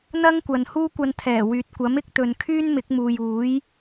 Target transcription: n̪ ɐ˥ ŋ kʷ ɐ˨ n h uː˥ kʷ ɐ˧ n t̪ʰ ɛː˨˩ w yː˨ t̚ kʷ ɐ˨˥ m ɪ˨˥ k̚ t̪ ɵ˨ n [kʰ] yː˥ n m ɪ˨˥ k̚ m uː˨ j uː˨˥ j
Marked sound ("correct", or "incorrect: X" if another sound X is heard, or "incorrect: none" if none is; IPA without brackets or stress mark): correct